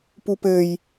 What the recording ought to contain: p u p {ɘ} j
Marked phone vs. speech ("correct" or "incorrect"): correct